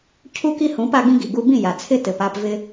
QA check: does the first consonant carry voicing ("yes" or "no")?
no